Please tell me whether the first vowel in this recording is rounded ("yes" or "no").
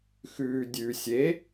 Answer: yes